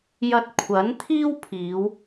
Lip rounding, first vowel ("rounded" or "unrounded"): unrounded